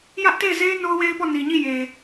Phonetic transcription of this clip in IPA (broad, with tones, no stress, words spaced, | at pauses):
jä˦ʔte˦˨ɪ̯ze˦ɪ̯ no˦ʊ̯we˦ɪ̯pɔ˦˨ ni˨ɲi˦˨ je˨